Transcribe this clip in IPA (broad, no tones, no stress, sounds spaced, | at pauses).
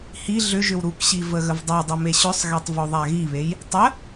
h i ɮ ʏ ʒ ʏ w ɾ u k ɕ i v ə ɣ ə v dˤ a dˤ ə m e ɕ ʏ sˤ ɣ e tˤ v o ðˤ a ɣ i β e j | tˤ ə